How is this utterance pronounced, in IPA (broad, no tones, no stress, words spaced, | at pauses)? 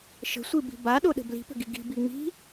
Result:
ʃə̤sʷibi̤ baɗoɗə̤ bli̤pə̤ɡi ɡi̤bi ŋ͡mi̤